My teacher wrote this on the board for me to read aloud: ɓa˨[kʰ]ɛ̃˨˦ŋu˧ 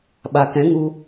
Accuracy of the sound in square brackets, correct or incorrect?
incorrect